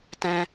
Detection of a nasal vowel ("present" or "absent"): present